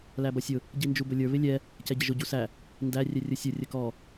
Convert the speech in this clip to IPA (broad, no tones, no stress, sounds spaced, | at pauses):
l æ b ʌ sʲ ʊ | ɟ i n d͡ʒ u b ʊ lʲ ə˞ β ɪ lʲ ɛ | c ɛ ɟ ɪ ʒ ʊ ɟ u s æ | n d æ rʲ ɛ rʲ ʊ sʲ ʊ rʲ ə k ɔ